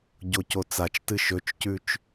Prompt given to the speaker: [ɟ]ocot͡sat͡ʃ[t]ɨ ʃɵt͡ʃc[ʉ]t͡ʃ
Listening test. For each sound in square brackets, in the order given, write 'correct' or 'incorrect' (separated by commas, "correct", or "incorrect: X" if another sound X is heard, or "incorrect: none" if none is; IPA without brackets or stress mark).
correct, correct, correct